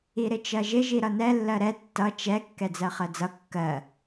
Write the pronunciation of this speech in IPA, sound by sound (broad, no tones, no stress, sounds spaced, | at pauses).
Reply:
i ɾ ɪ t͡ʃ ɜ ʒ ɪ ʒ i ɾ ʌ n ɛ lː ɜ ɾ ɛ tː ʌ t͡ʃ ɛ kː ɛ d͡z ɜ χ ɜ d͡z ʌ kː ɜ